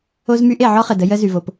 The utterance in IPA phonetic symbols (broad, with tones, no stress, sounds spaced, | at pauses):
o˥ z m y˥ ʔ e˩ ʕ ɔ˥ χ ə˩ d ə˥ j ə˥ z y˩ v o˩ p